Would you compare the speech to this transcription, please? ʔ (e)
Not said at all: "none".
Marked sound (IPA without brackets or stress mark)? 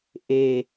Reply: e